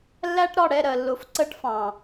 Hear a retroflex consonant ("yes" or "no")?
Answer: yes